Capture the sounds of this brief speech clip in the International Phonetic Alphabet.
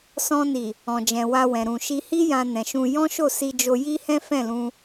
s ɔ̃˧ n i˨ | ɔ̃˨ d͡ʒ ɛ̃˨ w a˧ w ɛ̃˨ ɾ ũ˨ ʃ i˧ h i˦ j ã˧ n ɛ̃˨ ʃ ũ˧ j ɔ̃˦ ʃ o˦˨ s i˧ d͡ʒ o˧ j i˦ h ɛ̃˦ f ɛ̃˦˨ l ũ˧

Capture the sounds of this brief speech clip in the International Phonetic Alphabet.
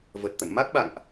v ə˨˩ t̚ t̪ ə̰˧˨ n m a˦˥ k̚ ɓ a̰˧˨ ŋ ʔ

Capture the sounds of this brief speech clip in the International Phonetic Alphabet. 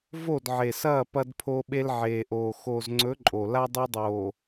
v o˦˨ d ʕ e˨ s ɐː˦˨ p ɐ˦ d pʰ o˦ ɓ e˦ l ʕ eː˨ ʔ oː˨ x oː˨ z ŋ͡ǀ ɵ˨˦ ǃʼ o˨ l a˦ dˤ o˦ dˤ oː˨

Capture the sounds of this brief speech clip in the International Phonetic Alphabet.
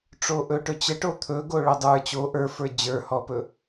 ʈ͡ʂ o ʔ ɵ ʈ ɵ t͡ɕ ə ʈ o t̪ʰ ɵ ɡ o ɭ ɵ dˤ ə˞ t͡ɕ o ʔ ə˞ f ə˞ d͡ʑ ə˞ h ɔ p ɵ

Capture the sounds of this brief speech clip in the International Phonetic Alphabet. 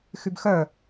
x y b x œ

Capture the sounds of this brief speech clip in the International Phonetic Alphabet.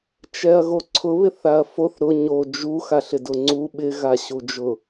t͡ʃ ɛ ɐ̯ ɣ o ǀʰ ʊ β ɪ θ a ɐ̯ f o θ ɾ ʊ ɲ o d͡ʒ u x a ɬ ɪ d ʊ ŋ͡ǀ u ɓ ɪ ɣ a ɕ u d͡ʒ ʊ

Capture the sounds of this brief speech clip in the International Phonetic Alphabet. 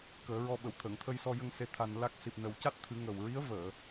k əː˨˩˦ ɹ ɔ˧ ɓ ə˨˩˨ w t̪ʰ əː˨˩˨ ŋ t̪ʰ ə˧ j s ɔ˧ j ə˧ ŋ s e˧ t̪ʰ a˧ n l a˦˥ k̚ s i˨˩ p̚ n ə˨˩˦ w c a˦˥ t̚ t̪ʰ ɨ˨˩˦ ŋ ə˨˩ w ɹ i˧˥ ə̯ v əː˨˩˨

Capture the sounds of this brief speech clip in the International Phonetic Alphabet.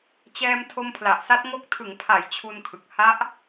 t͡ɕ ɛː˧ m tʰ o˧ m pʰ l a˨˩ ʔ s a˦˥ t̚ ŋ o˦˥ k̚ tʰ ɯ˩˦ ŋ pʰ a˩˦ j t͡ɕʰ u˧ n kʰ ɯ˨˩ k̚ h a˦˥ ʔ

